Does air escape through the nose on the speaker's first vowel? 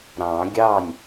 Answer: yes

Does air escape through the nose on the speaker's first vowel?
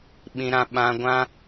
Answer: yes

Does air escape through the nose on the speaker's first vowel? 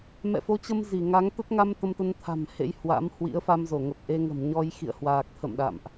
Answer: no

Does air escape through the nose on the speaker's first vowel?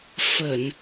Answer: no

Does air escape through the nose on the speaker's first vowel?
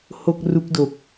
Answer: no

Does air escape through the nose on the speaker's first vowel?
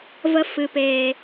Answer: no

